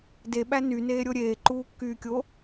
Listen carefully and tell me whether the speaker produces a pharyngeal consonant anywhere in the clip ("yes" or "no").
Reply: no